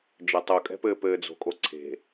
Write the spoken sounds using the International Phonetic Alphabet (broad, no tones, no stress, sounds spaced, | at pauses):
d͡ʒ ɘ tˤ u kʼ ɛ̤ p ɘː p ɘː d͡z o̤ kʼ o ǀʰ e̤